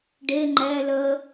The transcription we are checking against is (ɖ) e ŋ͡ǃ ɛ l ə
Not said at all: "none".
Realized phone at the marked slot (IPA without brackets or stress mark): ɖ